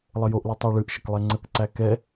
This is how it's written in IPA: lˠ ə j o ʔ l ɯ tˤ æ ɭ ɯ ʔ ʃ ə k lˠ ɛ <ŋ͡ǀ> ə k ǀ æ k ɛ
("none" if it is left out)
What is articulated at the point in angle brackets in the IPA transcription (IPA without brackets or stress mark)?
ŋ͡ǀ